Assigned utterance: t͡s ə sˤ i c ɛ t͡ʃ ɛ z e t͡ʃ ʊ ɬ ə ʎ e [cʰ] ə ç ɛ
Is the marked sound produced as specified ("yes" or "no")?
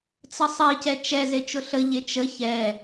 no